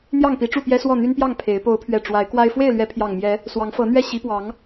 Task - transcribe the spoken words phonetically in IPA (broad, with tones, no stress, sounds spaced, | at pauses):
n̪ j ɑ˥˨ ŋ p i˨˦ ʈ͡ʂ u˥˨ p j ɛ˦ s w ɔ˥˨ n̪ y˦ n p j ɑ˥˨ ŋ pʰ e˨˦ ɪ̯ p o˨˦ ʊ̯ pʰ ɥ ɛ˨˩ ʈ͡ʂ w a˨˦ ɪ̯ k w a˦ ɪ̯ f w e˥˨ ɪ̯ l ɥ ɛ˨˦ pʰ j ɑ˨˩ ŋ m j ɛ˨˦ | s w ɑ˨˦ ŋ f ɤ˨˦ n̪ ɥ ɛ˥˨ ɕ i˨˦ p w ɑ˨˦ ŋ